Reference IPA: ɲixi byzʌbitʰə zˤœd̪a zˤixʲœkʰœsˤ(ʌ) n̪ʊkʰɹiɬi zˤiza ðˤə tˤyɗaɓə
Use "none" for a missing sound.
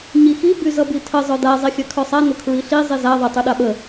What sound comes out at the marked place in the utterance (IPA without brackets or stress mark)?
a